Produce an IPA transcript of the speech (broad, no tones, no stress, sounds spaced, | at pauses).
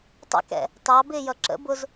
tˤ ə̰ k ɛ̰ | t ɑ b ɪː j ʌ ǁ ə̰ b ʊ z